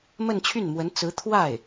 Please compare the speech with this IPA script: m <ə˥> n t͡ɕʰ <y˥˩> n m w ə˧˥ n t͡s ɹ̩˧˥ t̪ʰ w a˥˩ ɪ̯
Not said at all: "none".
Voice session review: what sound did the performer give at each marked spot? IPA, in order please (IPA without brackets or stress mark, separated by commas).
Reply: ə˥˧, y˥˩